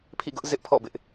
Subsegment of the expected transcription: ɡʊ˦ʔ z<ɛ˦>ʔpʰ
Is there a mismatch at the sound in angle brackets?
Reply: yes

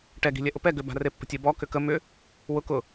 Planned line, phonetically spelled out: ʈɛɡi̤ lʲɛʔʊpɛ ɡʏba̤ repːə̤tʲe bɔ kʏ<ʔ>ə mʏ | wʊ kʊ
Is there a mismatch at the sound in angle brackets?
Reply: yes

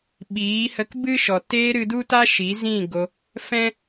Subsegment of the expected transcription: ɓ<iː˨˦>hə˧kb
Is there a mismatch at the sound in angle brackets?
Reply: no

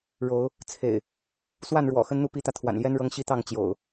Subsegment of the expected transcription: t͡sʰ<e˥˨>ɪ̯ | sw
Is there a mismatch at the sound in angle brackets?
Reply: yes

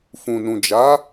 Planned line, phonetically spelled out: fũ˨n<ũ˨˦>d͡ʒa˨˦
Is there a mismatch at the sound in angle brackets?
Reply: yes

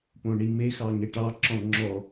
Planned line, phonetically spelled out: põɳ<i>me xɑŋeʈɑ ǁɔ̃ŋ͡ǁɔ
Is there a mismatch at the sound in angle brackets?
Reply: no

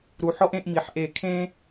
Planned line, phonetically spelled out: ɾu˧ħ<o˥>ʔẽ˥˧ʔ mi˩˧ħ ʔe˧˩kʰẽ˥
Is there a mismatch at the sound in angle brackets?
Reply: yes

